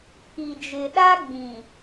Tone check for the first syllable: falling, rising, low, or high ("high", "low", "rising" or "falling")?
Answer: low